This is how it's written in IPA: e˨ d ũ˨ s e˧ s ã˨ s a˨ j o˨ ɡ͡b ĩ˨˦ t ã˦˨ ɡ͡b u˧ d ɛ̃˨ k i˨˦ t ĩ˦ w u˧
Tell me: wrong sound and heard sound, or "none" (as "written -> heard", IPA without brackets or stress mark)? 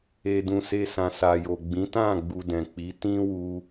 k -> k͡p